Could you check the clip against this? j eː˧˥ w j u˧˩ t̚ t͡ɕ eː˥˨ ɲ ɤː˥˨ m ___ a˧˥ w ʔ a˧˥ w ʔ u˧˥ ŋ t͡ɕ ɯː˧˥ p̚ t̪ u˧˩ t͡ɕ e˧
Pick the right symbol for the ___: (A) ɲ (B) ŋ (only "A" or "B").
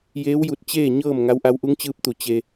B